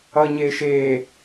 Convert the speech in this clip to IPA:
ʌ ɲ eː ʃ eː

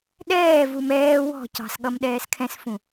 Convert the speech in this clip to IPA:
ɗ ɛː v u m ɛː w ɔ̤ c ɑ̤ s ɠ ʌ m ɗ ɛː s kʰ ɛ̃ s f ũ

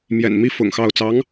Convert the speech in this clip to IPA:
m j ɛ̰˨˩ n m i˥ f ʊ̰˨˩ ŋ x ɑ˥˩ ʊ̯ t͡s ɑ˧˥ ŋ

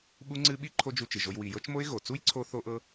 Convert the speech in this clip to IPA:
ɓ u˦ ŋ͡ǀ ɨ˦ ɓ i˦ ǃʰ o˦ d͡ʒ u˧ t͡ʃ ɨ˨ ʒ o˧ j w i˨ j ɤ˦ t͡ʃ m o˦ ɪ̯ ɣ o˨ t͡s u˦ j ǀʰ o˧ θ o˦ ʔ ɤ˦

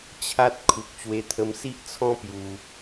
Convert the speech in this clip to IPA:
t͡ɕʰ a˦ t̚ kʰ u˨ k̚ t͡ɕ w e˧ t̪ʰ ə˧ m s i˦ ʔ t͡sʰ ɔ̃˦ p j u˧

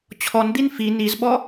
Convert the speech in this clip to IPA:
t͡ɕʰ ɔ n d̪ i n f i n i z ɓ ɔ

